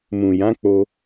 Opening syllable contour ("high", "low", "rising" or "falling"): low